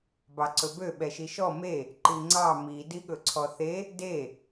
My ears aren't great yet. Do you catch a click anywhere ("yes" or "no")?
yes